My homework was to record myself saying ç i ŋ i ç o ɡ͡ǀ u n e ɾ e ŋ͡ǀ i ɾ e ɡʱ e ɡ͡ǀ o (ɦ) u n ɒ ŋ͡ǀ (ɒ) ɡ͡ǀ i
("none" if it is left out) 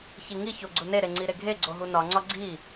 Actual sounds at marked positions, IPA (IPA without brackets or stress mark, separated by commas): ɦ, ɒ